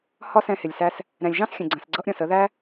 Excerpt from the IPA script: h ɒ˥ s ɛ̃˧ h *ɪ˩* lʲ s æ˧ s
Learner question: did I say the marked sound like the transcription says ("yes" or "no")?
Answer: yes